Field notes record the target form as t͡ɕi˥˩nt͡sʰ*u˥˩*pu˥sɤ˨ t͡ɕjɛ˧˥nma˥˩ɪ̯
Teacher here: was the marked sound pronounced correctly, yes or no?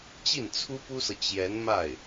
no